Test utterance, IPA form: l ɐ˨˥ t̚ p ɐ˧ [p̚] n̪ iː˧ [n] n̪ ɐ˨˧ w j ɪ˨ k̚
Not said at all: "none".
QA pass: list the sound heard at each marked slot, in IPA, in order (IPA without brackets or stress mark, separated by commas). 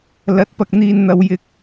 k̚, n